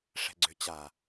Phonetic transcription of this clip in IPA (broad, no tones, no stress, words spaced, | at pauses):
ʂɛ̤ɡ͡ǀʏ t͡ɕa